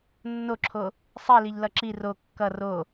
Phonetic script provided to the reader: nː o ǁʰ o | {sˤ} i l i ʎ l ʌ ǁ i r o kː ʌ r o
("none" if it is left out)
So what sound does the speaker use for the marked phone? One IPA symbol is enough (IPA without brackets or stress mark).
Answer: sˤ